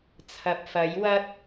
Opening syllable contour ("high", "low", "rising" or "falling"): low